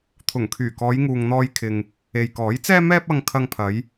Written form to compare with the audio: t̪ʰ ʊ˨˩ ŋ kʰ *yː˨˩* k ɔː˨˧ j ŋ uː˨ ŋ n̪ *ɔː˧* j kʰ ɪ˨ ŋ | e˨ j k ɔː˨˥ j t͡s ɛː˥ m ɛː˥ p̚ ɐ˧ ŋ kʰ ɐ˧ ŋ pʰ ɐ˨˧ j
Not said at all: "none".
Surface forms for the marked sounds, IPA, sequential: yː˨˩, ɔː˧

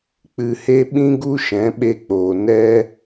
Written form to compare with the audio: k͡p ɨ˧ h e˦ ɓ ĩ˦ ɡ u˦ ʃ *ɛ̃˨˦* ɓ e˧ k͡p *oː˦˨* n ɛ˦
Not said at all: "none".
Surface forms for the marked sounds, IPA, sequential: ɛ̃˨˦, oː˨

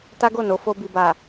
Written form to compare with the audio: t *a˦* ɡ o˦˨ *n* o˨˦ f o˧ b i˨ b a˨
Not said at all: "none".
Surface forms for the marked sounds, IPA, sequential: a˦, n

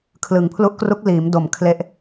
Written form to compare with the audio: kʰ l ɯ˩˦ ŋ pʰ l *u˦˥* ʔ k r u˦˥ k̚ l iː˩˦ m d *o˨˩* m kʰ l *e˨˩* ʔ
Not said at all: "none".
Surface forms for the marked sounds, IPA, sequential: u˦˥, o˨˩, e˦˥

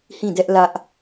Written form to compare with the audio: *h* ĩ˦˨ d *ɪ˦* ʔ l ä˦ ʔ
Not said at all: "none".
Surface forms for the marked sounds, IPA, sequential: h, ɛ˦

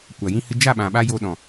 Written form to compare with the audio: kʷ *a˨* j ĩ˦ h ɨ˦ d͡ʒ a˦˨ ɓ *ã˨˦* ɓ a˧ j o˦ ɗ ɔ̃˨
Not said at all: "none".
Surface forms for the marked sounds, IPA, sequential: a˨, ã˨

